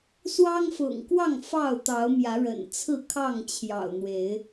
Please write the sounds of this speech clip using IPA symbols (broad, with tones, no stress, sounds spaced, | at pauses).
s w ɑ˦ ŋ f ʊ̰˨˩ ŋ k w ɑ˥˨ ŋ f ɑ˥˨ ʊ̯ t̪ ɑ˨˦ ʊ̯ m j ä˨˦ ɻ ə̰˨˩ n t͡sʰ ɹ̩˥˨ kʰ ɑ˥˨ ŋ t͡ɕʰ j ɑ̰˨˩ ʊ̯ n̪ w e˨˦ ɪ̯